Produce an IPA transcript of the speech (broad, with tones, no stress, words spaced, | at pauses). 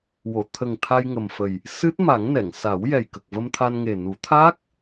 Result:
wo˨˩˨ t̪ʰə˨˩ŋ t̪ʰa˧jŋə˨˩mfə˨˩j | sɨ˦˥t̚ ma˨˩˦ŋnɛ˨˩˨ŋ sa˨˩˦w jɛ˨˩jkə˨˩k̚və˧mt̪ʰa˧n ŋe˨˩nu˨˩˦t̪ʰaː˦˥k̚